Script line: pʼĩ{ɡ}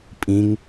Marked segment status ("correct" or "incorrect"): incorrect